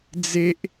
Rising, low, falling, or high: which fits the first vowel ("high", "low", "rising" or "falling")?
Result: high